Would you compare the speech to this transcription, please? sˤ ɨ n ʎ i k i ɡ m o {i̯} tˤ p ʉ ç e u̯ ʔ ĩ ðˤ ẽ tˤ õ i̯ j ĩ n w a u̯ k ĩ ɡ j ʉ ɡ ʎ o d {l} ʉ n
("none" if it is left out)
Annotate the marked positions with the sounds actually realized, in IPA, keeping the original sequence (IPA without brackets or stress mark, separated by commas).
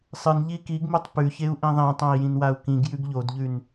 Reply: none, ʎ